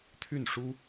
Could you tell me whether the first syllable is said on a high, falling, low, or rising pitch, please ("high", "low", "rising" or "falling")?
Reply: falling